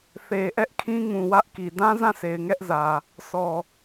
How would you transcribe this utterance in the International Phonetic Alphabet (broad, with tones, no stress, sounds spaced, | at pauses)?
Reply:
θ e˨ ʔ ɛ˦ ʔ kʰ ĩ˦ ŋ ũ˨ w ä˦ ʔ k i˨ d ã˦ z ã˦˨ s e˨ ɪ̯ ŋ ɛ˦ ʔ z ä˨ | s ɔ˨